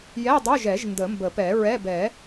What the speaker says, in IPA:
j ɛ˧˥˧ dˤ o˧˥˧ ʒ ɛ˨˩˦ ʒ n d ə˨˩˦ m b ə˨˩˦ p ɛ˨˩˦ ɹ ɛ˧˥˧ b ɛ˨˩˦

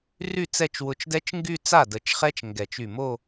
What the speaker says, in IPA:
r y˥˩ t͡s ɛ˥˩ t͡ʃ w ʊ˧˩ t͡ʃ d ɛ˦˥ t͡ʃ ŋ ɡ y˥˧ t͡s a˥˩ d ə˨˩˦ t͡ʃ χ ɛ˦˥ t͡ʃ ŋ ɡ ɛ˨˩˦ t͡ʃ y˧˩ m o˥˧

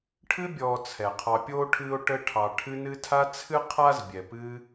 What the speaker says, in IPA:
ʈʰ ɨ˦ bʲ ɔː˨ t͡sʰ ɛ˩ qʰ ɑ˨ pʲ oː˥ ʈʰ ɨː˦ o̯ ʈ ə˦ ʈʰ ɑ˨ ʈʰ ɨ˦ n ɨ˦ tʰ a˦ t͡sʰ ɨ˥ qʰ a˥ z bʲ ɛ˨ p ɨː˦

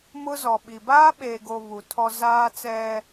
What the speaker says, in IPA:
m ʊ˦ z ɔ˨ ɓ i˨ b aː˦ ɓ eː˨ ɡ o˨ β u˨ tʰ ɔ˦ z aː˦ t͡s ɛ˦

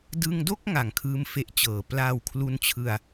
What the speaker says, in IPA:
d ɯ˧ ŋ d o˥˩ k̚ ŋ a˩˦ ŋ kʰ ɯː˥˩ m f e˥˩ ʔ t͡ɕ ɤː˩˦ p l aː˧ w kʰ l u˧ n t͡ɕʰ ɯ˧ a̯

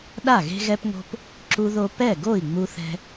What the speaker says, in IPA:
ɗ a˥˩ ɣ e̤˦ ɣ ɛ˦ p ŋ o̤˦ p | ǁ u˦ ð o˦ p ɛ˥˩ ɡ o˥˩ i̯ ŋ͡m u˦ θ ɛ̤˦

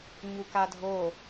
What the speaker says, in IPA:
ɲ u k a dʱ o

